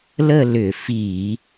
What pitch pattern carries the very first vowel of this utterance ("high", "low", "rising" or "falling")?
falling